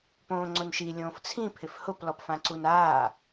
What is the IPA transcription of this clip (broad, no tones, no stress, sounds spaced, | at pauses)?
p õː ŋ͡ǀ ʊ n ʃ i lʲ õː f t͡sʰ ĩ pʰ ɪ f h ʊ p l ɔ p f ã ǀ u n aː